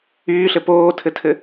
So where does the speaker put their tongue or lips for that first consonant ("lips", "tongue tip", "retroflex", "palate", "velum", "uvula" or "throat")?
tongue tip